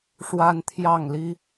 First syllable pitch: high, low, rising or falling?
high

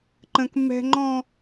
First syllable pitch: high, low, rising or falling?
high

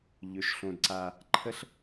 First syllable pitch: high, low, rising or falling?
low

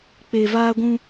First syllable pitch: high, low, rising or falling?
low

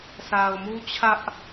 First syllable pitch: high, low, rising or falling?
low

